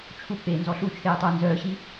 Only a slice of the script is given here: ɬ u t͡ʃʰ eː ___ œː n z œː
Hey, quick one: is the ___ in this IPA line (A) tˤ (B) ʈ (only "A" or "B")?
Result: A